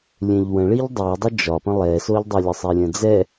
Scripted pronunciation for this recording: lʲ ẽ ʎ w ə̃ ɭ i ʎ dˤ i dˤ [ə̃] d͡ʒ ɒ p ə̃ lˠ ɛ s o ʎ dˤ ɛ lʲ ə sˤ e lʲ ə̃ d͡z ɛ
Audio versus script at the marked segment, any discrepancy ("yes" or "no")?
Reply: yes